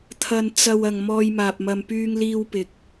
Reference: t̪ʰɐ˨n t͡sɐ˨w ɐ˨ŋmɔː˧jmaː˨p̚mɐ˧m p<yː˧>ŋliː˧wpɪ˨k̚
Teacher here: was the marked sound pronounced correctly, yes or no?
yes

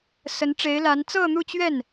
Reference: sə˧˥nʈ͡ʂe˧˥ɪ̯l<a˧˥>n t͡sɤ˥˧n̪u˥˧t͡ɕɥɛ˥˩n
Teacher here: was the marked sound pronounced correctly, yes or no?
yes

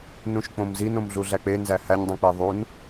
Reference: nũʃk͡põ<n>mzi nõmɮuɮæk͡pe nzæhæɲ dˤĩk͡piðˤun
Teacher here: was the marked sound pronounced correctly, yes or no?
no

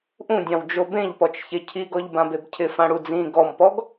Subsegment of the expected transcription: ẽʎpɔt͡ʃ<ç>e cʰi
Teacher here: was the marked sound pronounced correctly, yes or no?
yes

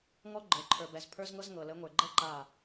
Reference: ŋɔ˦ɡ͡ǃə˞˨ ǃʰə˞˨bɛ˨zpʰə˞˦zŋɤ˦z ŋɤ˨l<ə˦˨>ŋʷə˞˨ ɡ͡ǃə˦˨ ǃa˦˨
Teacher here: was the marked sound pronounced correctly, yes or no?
no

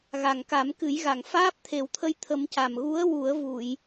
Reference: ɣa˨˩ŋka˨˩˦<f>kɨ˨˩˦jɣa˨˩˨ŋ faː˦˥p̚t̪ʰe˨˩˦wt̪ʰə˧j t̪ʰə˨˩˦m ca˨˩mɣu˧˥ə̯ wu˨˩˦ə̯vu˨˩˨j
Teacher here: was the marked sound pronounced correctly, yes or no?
no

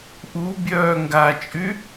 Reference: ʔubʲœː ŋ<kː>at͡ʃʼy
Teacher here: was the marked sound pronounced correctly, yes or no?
no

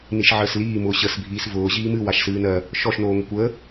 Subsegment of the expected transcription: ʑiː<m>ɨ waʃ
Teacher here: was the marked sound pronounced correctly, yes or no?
yes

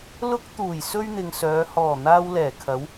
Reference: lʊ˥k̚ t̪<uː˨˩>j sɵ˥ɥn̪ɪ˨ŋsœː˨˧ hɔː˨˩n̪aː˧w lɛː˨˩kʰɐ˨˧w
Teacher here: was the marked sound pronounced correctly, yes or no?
yes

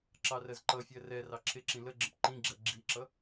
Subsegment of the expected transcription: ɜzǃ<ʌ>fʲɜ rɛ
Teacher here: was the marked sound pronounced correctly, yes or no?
yes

